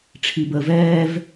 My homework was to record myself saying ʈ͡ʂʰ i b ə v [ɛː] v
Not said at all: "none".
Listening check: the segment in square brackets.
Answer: ɛː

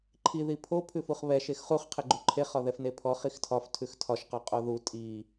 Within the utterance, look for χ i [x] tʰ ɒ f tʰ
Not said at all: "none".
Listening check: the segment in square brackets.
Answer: x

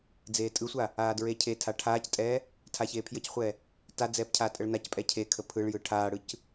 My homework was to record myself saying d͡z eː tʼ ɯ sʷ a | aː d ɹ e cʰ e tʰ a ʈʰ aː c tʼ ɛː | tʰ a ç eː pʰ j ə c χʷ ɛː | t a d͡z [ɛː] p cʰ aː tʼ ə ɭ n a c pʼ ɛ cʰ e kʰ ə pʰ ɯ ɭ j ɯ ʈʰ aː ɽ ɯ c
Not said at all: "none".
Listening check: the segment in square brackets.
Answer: ɛː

